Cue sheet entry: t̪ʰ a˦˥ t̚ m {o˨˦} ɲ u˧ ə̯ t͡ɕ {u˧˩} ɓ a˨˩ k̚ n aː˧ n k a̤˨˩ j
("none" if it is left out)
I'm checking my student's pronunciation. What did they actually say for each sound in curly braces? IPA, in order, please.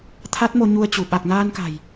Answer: o˧, u˧˩

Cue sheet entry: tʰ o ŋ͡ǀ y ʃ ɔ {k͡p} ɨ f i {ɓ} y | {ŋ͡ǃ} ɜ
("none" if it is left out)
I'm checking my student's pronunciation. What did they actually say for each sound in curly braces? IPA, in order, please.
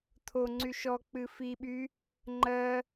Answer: k͡p, ɓ, ŋ͡ǃ

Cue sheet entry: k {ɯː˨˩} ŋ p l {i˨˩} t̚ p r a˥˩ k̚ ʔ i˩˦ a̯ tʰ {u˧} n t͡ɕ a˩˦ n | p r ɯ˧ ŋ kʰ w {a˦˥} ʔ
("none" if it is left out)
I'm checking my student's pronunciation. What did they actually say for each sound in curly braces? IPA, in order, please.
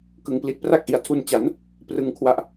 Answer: ɯ˨˩, i˨˩, u˧, a˦˥

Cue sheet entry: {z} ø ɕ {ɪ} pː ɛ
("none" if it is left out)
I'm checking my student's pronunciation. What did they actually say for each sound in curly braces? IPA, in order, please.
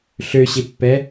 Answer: ɬ, ɪ

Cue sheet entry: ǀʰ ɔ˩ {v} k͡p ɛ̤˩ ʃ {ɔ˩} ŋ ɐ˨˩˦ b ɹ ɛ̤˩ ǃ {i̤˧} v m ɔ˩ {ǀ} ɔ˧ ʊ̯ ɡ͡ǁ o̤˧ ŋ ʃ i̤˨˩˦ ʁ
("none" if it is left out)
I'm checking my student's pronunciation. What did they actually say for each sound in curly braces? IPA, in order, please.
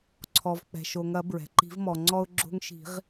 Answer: v, o˩, i̤˨˩˦, ŋ͡ǀ

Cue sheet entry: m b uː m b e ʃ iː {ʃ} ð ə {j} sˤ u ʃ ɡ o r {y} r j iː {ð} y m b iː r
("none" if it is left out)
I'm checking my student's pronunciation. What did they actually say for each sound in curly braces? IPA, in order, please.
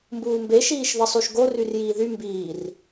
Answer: ʃ, none, y, ð

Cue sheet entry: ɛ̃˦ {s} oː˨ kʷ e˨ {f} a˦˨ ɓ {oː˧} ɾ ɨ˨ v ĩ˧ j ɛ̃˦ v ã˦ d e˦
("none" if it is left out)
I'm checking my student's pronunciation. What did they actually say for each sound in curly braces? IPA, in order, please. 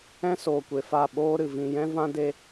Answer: s, f, oː˦

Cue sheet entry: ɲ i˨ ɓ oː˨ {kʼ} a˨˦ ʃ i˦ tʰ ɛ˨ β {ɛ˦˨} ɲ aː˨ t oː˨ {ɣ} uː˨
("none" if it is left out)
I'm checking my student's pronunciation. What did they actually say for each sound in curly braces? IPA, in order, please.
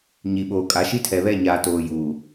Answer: kʼ, ɛ˦˨, j

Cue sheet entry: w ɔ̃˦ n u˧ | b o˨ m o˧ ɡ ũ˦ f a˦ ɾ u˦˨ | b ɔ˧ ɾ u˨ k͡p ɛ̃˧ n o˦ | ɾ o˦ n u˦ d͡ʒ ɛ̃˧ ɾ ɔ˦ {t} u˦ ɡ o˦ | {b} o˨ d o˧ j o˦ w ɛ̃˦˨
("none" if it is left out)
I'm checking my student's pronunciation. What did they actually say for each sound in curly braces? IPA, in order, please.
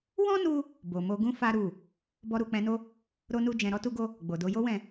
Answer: t, ɡ͡b

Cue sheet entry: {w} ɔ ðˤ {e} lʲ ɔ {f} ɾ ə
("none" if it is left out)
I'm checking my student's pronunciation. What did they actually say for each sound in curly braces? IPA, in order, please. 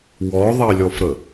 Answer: w, e, f

